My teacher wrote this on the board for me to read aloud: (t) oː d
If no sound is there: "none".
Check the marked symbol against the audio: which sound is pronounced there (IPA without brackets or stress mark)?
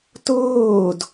t